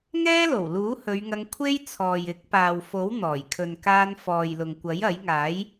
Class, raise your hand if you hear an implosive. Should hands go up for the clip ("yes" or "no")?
no